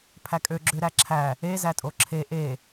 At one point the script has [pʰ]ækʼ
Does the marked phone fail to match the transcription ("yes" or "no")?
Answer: no